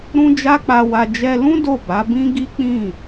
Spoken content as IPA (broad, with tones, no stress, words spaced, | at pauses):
ɾũ˦d͡ʒa˦k͡pa˧wa˧ d͡ʒɛ˧lũ˦ do˦˨ba˨˦ bĩ˦ ɡi˦k͡pĩ˦˨